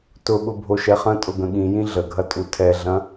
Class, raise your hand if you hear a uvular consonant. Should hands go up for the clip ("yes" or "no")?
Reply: yes